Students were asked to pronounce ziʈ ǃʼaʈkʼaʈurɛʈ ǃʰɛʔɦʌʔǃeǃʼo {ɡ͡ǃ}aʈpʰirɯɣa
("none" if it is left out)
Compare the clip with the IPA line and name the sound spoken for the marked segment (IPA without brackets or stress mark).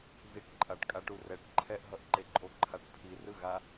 ǃʰ